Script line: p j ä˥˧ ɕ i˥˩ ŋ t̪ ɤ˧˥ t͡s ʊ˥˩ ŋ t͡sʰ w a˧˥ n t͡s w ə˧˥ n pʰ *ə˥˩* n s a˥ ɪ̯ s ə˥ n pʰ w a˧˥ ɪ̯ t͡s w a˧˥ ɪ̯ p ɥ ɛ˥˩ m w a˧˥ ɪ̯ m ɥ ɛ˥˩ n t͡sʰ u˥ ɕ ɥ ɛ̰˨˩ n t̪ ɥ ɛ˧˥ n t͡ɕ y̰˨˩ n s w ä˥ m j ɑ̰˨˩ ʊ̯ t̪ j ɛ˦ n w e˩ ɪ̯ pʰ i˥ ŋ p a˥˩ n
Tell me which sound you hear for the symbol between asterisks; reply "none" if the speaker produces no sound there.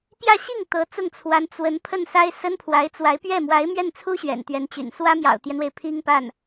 ə˥˩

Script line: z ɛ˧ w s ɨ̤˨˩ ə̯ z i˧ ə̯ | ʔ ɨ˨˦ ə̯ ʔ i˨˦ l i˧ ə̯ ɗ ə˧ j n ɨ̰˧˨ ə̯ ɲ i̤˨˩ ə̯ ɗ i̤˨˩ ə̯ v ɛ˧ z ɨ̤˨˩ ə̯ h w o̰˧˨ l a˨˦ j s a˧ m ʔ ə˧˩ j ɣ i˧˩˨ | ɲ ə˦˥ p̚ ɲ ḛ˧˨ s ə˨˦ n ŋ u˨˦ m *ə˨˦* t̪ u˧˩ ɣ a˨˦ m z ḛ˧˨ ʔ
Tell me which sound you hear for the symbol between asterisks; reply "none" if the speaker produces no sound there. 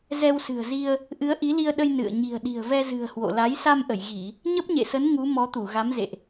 ɔ˨˦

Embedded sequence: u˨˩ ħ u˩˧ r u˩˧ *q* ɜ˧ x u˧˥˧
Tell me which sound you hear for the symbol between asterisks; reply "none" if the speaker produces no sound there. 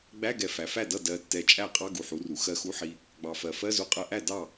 x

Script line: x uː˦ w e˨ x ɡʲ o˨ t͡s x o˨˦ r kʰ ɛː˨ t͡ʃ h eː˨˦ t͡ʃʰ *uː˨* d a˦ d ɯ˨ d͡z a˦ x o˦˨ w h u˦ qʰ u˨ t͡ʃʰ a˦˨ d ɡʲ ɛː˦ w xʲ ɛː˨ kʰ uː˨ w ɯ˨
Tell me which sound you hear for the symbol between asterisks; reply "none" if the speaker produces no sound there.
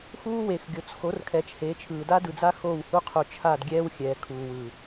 ɯː˨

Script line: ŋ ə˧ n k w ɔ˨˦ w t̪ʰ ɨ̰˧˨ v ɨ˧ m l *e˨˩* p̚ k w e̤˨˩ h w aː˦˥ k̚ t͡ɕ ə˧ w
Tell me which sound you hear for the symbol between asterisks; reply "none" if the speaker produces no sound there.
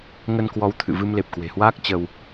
e˨˩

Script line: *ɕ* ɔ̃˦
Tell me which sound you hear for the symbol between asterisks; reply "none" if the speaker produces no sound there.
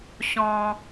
ɕ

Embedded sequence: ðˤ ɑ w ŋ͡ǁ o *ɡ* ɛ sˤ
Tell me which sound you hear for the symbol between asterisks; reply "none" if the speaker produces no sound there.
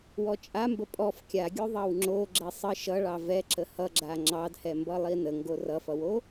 ɡ͡ǁ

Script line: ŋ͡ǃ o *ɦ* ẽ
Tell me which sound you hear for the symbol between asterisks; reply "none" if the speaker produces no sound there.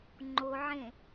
ʕ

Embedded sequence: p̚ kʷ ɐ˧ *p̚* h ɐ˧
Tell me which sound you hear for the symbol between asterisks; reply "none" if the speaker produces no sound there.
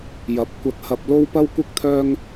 t̚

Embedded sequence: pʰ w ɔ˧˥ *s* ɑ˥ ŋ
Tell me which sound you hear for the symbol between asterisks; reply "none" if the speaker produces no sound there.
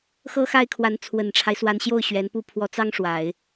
t͡s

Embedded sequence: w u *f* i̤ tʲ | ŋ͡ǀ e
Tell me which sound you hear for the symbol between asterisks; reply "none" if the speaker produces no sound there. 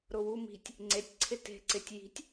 m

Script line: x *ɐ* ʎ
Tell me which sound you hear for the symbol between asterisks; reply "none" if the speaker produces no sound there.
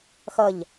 ɐ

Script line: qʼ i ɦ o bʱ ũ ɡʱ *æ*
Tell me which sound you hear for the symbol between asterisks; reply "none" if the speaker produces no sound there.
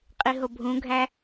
æ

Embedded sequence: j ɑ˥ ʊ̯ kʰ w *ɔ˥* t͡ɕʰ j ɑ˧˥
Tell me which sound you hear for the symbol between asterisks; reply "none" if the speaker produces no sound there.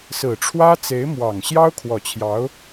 ɔ˨˩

